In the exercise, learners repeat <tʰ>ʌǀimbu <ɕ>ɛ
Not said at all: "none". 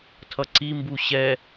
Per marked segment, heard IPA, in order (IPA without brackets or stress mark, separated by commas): tʰ, ɕ